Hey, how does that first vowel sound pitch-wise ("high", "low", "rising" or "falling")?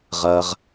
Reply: low